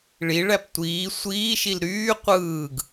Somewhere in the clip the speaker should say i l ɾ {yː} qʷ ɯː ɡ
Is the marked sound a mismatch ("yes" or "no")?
no